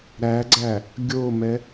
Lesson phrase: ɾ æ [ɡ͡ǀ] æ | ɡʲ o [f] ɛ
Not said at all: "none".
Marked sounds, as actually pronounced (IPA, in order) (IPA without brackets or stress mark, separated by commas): ɡ͡ǀ, m